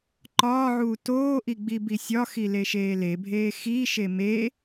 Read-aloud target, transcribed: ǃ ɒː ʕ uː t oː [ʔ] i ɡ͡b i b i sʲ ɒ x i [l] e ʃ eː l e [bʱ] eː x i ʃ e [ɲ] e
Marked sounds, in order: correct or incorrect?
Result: correct, correct, correct, incorrect

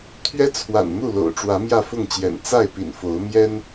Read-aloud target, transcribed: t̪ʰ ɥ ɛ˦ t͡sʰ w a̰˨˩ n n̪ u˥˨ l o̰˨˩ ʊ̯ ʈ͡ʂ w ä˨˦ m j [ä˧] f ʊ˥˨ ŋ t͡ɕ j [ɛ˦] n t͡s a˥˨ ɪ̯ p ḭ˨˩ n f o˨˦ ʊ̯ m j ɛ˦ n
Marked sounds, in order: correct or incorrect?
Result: incorrect, incorrect

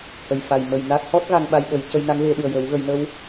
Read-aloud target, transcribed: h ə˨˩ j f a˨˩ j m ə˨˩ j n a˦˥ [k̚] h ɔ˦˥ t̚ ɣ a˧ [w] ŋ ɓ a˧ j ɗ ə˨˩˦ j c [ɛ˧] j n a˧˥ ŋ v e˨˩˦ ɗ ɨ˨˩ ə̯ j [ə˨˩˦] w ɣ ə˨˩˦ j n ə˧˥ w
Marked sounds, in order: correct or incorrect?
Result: correct, incorrect, incorrect, correct

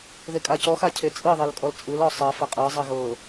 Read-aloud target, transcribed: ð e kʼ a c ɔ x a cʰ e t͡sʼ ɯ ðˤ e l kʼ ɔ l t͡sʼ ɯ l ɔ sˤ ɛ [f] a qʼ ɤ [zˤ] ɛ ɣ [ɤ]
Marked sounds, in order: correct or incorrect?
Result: correct, correct, correct

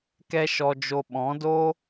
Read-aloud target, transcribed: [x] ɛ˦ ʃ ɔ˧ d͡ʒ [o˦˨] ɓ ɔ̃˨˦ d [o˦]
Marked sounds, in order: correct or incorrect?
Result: incorrect, incorrect, correct

